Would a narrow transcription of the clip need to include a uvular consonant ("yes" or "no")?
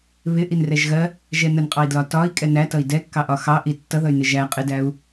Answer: yes